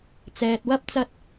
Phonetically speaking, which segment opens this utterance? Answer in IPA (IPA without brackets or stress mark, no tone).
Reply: t͡s